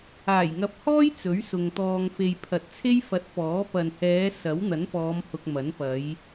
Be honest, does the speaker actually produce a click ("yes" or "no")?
no